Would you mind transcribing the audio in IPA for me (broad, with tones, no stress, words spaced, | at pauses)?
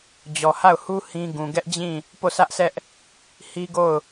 d͡ʑɔ˨ha˦˨ʊ̯hu˦ hĩ˦ɡũ˨ ɡɛ˦ʔd͡ʑĩ˦˨ | po˦˨sä˦ʔsʰɛ˦ʔ | hi˦ɡo˦˨ʊ̯